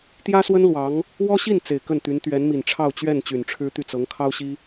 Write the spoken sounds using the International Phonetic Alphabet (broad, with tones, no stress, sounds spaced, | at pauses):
t̪ j ä˥ s w ə˥ n l w ɑ˧˥ ŋ | w ɔ˥ ɕ i˥˩ n t͡s e˨˩ ɪ̯ k ə˥˩ n t̪ y˧˥ n t̪ ɥ ɛ˧˥ n m i˨˩ n ʈ͡ʂʰ ɑ˥˧ ʊ̯ t͡ɕ ɥ ɛ˥˩ n t͡ɕ y˨˩ n ʈ͡ʂʰ ɻ̩˥ t̪ y˥˩ t͡s ɤ˧˥ ŋ kʰ ɑ˥ ʊ̯ ɕ i˥